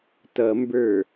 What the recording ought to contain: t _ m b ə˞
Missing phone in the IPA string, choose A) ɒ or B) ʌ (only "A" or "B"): B